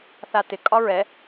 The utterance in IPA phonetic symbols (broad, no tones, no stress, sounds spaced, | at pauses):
θ a t ɪ kʼ ɒ ɹ ɛ